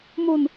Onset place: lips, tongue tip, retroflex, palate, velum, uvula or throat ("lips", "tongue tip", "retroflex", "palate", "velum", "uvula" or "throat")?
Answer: lips